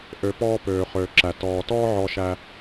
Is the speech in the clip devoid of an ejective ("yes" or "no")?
yes